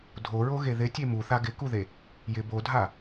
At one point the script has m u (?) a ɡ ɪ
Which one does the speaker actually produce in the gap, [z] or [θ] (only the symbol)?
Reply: θ